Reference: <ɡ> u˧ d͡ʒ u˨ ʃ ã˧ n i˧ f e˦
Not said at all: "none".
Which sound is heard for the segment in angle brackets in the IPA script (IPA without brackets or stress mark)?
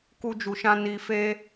k